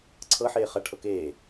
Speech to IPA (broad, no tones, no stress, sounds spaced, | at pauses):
ǀʰ ɤ ħ eː χ ɐ ʈʰ ɤ k eː